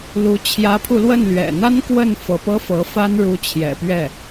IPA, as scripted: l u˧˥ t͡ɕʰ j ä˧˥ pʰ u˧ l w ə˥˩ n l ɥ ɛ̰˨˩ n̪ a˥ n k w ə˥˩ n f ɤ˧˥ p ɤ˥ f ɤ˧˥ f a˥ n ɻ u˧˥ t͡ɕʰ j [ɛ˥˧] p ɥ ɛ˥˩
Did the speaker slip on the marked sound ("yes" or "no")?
yes